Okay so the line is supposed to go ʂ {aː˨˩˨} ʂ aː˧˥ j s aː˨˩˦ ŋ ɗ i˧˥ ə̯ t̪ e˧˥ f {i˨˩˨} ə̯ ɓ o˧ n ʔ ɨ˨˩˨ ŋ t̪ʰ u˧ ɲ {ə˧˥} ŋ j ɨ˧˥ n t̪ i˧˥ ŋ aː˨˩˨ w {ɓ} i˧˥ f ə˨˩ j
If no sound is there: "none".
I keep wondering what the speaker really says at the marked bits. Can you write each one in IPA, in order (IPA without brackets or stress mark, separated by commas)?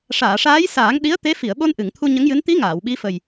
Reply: aː˨˩˨, i˨˩˨, ə˧˥, ɓ